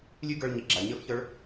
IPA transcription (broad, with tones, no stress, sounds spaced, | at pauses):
lʲ ʉ˦ ɡ ə˞˧ ɭ ɲ i˨ ɡ͡ǁ a˨ ɲ ə˞˦ f ç ə˞˦ ɭ